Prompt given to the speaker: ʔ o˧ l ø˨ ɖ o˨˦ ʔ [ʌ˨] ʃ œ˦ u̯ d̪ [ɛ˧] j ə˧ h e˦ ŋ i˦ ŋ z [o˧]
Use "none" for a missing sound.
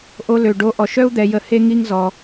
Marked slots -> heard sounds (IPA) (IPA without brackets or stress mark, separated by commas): ɔ˨, ɛ˧, ɔ˧